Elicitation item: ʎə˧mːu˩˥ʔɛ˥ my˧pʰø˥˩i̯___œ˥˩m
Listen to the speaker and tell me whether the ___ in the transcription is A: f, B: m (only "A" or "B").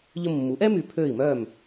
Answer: B